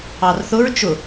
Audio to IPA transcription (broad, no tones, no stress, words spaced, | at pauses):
ɑrθʊɹ t͡ʃʊ